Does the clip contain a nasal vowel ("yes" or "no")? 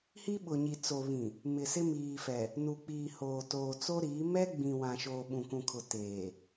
yes